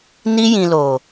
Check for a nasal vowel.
present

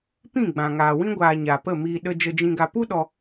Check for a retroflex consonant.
absent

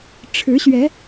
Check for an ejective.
absent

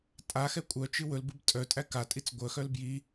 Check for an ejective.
present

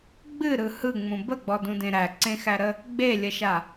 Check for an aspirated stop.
absent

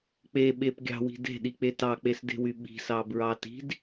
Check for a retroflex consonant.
absent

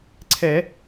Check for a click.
present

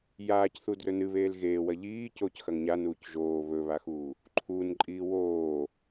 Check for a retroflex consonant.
absent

